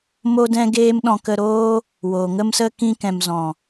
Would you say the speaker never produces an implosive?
no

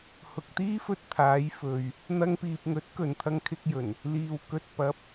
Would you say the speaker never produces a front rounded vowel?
yes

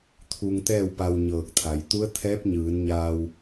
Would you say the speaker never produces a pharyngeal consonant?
yes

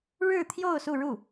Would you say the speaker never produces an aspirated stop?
no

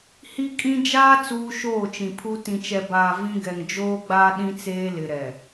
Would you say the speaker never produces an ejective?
no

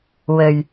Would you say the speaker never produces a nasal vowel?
yes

